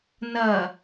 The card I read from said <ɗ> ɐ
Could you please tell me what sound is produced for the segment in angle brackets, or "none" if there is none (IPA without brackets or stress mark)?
n